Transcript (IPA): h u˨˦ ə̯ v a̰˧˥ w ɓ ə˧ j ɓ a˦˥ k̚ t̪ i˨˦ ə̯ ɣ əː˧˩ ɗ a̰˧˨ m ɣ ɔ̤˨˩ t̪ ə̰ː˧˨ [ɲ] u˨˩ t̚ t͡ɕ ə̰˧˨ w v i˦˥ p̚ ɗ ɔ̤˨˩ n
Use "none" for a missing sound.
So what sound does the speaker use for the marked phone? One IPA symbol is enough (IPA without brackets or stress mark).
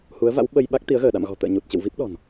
ɲ